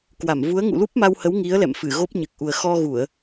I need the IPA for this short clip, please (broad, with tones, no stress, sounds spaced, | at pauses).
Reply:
k w a˧˩ m v u˨˦ ə̯ ŋ ṵ˧˨ l u˦˥ p̚ m a˧ w h ə˨˦ w ŋ i˨˦ ə̯ l ɛ̰˧˨ m f ɨ˧˩ ɣ o˦˥ p̚ ɲ ɨ˨˩ k̚ ʔ u˨˩ ə̯ x ɔ˧ ɣ u˧˩˨ ə̯